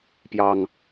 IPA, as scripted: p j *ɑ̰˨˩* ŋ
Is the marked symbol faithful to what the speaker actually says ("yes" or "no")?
no